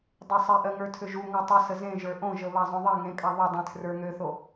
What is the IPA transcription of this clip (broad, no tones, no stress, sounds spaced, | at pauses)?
dˤ ø sˤ ɛ ʔ ɜ ŋ ə˞ tʰ ʏ ʒ u ŋ ə˞ tˤ ə s ə z ẽ ʒ ə˞ ʔ õ ʒ ə β a zˤ õ ðˤ ɛ ŋ ẽ kʼ a ðˤ ø dˤ ẽ tʰ r ə˞ ŋ ø θ o